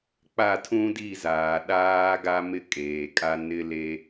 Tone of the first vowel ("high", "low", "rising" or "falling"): falling